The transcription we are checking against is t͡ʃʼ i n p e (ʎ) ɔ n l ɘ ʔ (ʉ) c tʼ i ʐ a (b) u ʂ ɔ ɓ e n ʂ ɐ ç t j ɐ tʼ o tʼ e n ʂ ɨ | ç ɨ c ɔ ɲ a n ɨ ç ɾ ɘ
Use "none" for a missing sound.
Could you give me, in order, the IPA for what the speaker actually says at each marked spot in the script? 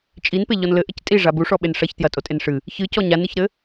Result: ʎ, ɘ, b

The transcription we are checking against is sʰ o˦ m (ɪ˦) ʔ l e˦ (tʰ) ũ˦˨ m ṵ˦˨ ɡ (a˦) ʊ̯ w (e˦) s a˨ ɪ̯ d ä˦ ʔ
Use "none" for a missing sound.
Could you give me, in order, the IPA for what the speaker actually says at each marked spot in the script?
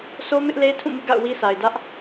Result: ɪ˦, tʰ, a̰˦˨, i˦

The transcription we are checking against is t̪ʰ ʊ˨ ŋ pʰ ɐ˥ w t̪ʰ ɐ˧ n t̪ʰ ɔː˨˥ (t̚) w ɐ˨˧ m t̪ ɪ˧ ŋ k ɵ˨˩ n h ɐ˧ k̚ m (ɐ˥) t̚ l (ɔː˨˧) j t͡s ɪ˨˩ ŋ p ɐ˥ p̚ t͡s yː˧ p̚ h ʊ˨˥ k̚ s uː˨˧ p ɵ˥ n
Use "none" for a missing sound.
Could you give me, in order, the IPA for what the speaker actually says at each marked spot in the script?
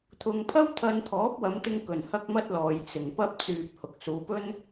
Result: p̚, ɐ˥, ɔː˨

